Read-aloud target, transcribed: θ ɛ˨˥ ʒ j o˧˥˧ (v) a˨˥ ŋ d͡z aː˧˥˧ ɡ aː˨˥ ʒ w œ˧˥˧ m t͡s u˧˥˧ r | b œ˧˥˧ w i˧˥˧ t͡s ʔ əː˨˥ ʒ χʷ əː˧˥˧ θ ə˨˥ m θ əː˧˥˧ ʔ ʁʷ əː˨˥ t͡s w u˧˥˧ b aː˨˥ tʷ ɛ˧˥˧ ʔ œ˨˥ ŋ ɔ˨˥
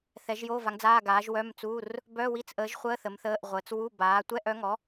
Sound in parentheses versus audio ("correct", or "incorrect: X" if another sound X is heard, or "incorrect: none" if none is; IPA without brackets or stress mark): correct